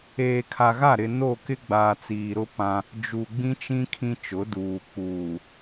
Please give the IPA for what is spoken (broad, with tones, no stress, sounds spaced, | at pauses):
eː˨ kʰ a˨ ɣ a˦˨ ɾ ɪ˨ n o˦˨ k ɪ˦ ɡ͡b aː˨ t͡s iː˨ ɾ ʊ˦ p ã˦ | d͡ʒ u˨ ɡ͡b ĩ˦ t͡ʃ ĩ˦ kʰ ĩ˦ t͡ʃ ʊ˨˦ d uː˨ k͡p uː˨